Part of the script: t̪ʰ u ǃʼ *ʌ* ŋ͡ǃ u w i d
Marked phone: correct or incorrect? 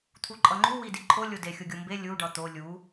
correct